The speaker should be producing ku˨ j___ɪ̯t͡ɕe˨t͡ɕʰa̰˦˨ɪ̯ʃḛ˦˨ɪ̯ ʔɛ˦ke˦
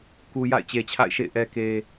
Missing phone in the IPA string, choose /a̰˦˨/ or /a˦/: a̰˦˨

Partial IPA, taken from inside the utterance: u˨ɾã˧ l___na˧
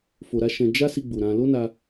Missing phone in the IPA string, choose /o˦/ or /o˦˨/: o˦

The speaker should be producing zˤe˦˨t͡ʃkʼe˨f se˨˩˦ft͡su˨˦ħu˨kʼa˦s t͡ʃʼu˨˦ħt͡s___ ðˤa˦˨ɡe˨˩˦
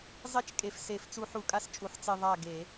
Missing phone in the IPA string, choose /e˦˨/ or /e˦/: e˦˨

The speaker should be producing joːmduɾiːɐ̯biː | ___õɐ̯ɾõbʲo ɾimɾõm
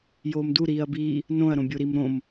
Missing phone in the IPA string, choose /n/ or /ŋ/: n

